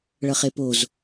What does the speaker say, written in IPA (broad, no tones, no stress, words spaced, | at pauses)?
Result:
ɭʌχepoz